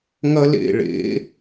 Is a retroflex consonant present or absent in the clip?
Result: present